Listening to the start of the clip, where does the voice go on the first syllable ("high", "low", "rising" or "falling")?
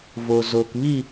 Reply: low